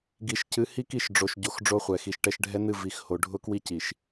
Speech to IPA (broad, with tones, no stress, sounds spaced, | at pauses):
ɡ i˨ ʃ c ɨ˨˦ h i˦ k i˦˨ ʃ ɖ͡ʐ o˨ ʃ ɟ o˨ x ɖ͡ʐ o˦ χʷ ɛ˨ x i˨ ʃ ʈ ɛ˦ ʃ ɖʱ ɛ˦ n ɨ˦˨ v i˨ x h o˨ ɖʱ ʊ˦ k w i˦ c i˨ ʃ